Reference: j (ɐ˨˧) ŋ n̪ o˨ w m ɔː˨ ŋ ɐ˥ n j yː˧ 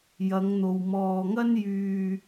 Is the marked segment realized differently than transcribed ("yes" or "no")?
no